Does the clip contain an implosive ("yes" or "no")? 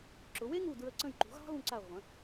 no